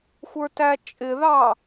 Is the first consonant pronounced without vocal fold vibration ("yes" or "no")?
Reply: yes